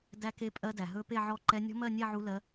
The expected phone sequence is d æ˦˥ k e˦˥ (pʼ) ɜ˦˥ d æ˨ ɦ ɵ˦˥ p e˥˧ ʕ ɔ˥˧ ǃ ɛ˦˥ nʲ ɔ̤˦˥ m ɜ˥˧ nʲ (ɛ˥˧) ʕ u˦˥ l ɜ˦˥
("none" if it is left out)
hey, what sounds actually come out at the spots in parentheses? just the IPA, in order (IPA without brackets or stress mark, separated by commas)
pʼ, ɛ˥˧